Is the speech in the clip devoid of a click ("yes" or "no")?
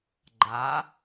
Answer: no